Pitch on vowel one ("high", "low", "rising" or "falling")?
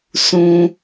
high